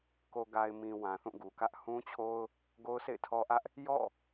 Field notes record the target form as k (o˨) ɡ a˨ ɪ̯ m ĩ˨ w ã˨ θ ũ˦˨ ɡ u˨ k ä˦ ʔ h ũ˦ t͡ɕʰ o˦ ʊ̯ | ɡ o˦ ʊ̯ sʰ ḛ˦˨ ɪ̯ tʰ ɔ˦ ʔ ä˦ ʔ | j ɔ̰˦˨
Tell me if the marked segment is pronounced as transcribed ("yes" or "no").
yes